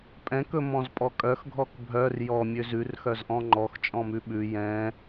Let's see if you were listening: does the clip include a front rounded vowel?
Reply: yes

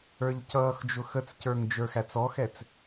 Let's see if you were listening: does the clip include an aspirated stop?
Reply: no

